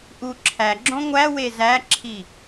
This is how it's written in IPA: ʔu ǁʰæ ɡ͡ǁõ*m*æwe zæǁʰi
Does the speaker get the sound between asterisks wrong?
yes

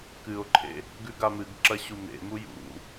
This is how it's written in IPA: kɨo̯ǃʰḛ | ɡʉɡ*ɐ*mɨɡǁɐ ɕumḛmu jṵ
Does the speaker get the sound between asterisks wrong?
yes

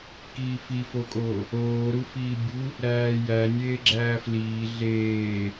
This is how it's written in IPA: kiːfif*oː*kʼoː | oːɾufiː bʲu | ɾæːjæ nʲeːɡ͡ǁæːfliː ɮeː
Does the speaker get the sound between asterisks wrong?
yes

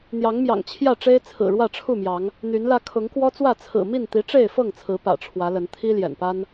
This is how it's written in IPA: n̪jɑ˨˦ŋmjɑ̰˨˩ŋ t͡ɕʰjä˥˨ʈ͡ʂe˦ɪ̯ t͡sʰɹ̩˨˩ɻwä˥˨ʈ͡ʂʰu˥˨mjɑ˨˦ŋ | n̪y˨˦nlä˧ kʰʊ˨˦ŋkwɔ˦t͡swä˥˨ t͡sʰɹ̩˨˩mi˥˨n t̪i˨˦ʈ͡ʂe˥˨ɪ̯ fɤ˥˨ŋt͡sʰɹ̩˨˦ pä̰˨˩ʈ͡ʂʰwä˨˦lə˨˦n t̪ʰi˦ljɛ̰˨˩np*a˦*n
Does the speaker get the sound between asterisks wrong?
no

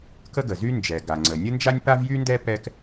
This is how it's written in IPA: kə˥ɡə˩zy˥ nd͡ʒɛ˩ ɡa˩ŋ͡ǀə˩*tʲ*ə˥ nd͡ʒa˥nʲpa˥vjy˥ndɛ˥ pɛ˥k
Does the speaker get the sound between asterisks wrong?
yes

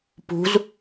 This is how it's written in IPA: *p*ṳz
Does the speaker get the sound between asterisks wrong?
no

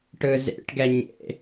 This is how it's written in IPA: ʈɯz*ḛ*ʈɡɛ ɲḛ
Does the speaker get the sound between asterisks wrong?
no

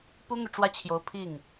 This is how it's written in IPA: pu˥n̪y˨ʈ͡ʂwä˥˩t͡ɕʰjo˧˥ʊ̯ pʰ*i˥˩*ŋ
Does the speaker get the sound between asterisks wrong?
no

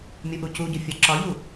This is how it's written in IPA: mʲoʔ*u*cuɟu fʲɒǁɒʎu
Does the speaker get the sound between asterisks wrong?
no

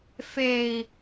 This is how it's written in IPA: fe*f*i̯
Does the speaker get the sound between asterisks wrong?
yes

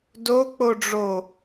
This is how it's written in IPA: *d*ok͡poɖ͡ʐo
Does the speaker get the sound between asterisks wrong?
no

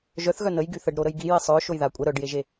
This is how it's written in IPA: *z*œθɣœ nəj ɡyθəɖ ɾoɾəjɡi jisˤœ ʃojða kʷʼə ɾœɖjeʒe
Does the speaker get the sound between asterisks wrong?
yes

